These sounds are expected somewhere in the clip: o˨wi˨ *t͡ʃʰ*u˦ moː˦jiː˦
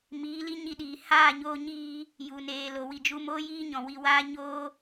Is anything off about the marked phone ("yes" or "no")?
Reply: yes